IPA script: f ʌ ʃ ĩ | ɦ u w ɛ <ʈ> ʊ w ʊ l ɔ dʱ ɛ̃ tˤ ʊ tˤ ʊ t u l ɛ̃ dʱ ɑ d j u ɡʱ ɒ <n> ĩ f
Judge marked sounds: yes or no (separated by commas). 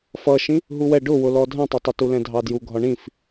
no, no